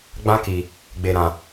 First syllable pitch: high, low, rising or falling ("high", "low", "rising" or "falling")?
high